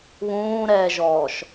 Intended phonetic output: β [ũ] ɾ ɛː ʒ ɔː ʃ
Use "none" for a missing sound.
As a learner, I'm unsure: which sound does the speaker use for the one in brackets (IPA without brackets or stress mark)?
ũː